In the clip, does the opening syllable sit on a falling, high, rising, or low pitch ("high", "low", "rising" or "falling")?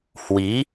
rising